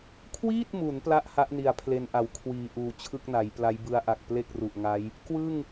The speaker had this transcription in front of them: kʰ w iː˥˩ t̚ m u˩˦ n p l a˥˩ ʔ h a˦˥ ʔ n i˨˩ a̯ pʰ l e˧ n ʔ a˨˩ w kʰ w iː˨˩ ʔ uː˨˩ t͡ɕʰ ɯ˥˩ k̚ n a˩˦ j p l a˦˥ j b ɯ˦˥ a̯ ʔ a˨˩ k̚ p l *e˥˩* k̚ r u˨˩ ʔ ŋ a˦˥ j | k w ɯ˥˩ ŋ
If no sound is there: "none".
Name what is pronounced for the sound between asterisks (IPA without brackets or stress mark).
e˥˩